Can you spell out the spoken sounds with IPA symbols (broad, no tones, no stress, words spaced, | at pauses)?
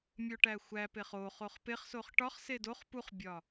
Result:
mʲoʈæxʷæpeχ o χoχpeχsoχ ʈɒχse doχ puχbʲɒ